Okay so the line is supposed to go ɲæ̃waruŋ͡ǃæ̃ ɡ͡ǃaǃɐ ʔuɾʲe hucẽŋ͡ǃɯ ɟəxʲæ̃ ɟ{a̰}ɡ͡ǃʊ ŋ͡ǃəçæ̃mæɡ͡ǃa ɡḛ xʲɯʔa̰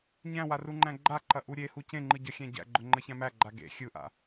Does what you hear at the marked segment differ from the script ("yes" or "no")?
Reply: yes